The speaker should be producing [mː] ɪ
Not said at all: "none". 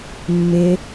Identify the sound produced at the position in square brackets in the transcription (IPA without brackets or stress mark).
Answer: mː